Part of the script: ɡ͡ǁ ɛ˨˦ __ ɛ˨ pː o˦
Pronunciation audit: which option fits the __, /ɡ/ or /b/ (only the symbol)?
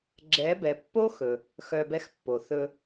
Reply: b